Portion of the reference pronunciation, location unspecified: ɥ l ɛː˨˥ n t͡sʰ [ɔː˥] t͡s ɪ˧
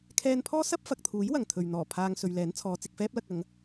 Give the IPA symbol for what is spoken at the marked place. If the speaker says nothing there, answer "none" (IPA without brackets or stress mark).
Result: ɔː˨˧